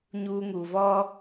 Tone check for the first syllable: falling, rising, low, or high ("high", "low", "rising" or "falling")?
high